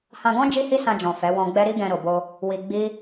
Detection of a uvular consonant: absent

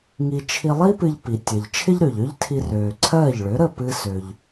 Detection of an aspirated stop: present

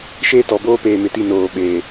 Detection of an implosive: present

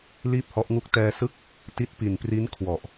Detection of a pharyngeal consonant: absent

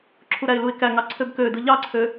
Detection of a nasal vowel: absent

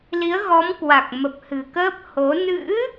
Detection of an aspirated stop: absent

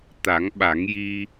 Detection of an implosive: present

